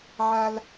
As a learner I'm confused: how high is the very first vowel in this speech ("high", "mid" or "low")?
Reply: low